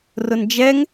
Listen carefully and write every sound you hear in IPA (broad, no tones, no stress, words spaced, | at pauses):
rʊnd͡ʒɛŋ